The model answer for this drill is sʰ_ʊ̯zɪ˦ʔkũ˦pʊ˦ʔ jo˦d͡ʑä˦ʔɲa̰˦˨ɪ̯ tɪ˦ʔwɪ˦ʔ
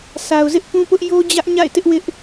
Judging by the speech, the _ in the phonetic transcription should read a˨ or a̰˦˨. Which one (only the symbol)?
a˨